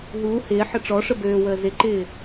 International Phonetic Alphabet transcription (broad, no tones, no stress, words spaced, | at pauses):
ɦuː hɪː ħəʈ͡ʂɔʂə bøːwəː zɪǃɪː